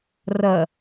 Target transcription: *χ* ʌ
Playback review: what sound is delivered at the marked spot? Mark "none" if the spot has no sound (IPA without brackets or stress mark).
r